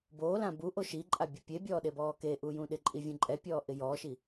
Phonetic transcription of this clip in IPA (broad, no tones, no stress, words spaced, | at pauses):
boːlã buʔo ʃiǃʼa bʲʊpʲebʲɔː ɗebɔːkeʔu jũɗɪǃʼi vʲũǃʼɛpʲɔː ʔɪjɔːʃi